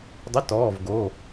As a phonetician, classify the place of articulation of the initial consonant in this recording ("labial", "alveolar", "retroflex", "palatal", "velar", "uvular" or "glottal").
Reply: alveolar